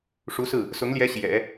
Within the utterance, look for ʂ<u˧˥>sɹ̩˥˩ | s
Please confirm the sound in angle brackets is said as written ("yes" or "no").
yes